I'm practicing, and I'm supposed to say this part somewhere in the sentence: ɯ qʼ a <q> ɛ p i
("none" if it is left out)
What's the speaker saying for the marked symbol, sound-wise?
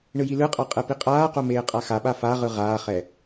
qʼ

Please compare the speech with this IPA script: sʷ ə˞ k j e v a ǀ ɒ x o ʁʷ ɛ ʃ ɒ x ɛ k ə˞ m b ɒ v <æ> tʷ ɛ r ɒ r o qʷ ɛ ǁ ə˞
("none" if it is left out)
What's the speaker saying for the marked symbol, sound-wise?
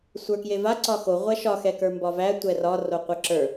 æ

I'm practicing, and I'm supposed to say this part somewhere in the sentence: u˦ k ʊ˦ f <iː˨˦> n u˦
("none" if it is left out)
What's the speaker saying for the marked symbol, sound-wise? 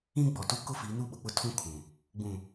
iː˨˦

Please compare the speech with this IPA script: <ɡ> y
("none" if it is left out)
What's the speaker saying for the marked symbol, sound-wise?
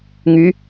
ŋ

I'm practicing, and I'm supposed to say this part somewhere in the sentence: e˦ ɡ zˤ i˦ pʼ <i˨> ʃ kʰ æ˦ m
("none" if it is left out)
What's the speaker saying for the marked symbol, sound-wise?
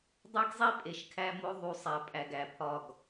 e˨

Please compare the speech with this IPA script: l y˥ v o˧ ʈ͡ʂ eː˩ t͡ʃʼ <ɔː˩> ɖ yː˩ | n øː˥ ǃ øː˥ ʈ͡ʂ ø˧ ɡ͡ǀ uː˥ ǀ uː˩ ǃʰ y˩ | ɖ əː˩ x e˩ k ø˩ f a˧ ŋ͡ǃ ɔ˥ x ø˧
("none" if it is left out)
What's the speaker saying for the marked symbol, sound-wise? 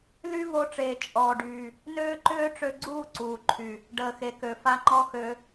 ɔː˩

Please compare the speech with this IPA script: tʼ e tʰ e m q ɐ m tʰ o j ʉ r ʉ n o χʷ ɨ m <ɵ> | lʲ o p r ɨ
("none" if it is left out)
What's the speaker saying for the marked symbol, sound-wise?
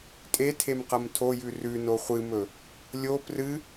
ɵ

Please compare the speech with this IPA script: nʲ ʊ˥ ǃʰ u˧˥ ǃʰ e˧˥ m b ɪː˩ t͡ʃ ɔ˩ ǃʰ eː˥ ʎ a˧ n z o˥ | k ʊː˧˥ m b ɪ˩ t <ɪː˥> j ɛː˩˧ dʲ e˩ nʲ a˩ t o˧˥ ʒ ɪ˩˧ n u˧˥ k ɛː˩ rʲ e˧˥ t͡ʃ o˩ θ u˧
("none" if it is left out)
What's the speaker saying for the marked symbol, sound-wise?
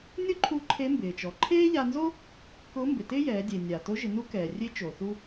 ɪː˥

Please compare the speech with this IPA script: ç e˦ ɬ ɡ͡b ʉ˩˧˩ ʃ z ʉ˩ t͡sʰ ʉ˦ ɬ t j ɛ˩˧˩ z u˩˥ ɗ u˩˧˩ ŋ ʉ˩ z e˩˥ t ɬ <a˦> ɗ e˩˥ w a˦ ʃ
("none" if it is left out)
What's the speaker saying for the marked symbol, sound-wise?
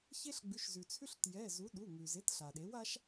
a˩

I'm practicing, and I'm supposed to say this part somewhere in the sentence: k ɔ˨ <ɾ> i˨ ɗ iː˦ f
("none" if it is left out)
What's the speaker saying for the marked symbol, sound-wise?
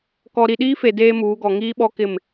ɾ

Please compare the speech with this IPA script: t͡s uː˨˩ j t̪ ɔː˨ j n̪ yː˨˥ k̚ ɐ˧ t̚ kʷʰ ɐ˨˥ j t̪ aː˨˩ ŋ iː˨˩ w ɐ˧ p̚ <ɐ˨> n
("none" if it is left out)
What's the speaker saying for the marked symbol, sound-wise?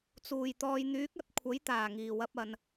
ɐ˨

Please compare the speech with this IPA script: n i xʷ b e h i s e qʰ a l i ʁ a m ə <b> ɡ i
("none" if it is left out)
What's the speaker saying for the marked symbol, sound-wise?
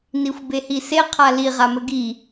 none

